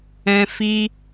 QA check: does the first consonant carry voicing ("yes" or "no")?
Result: no